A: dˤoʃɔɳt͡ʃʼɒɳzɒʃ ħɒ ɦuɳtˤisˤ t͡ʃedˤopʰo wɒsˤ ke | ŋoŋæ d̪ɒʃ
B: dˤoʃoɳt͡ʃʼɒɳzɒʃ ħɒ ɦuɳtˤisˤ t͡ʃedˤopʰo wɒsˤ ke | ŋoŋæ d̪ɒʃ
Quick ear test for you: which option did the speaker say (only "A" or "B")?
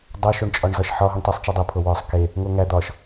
B